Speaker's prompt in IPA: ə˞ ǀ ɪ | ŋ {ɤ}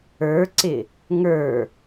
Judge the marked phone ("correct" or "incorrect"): incorrect